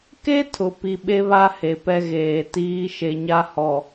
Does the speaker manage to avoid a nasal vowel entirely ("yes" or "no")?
yes